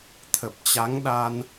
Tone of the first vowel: low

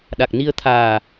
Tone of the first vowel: low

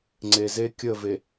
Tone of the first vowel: low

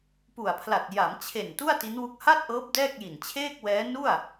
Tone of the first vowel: low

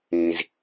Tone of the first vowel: low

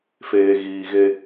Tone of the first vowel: low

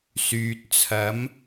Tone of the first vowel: low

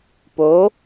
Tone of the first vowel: rising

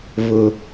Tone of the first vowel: low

